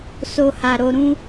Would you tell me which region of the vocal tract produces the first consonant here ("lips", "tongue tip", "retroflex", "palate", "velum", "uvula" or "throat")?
tongue tip